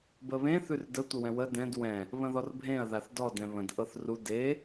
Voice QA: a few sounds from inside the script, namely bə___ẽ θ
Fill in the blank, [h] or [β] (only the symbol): β